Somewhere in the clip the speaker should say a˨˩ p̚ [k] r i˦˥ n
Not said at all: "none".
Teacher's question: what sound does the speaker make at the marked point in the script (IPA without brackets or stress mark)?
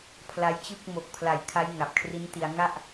kʰ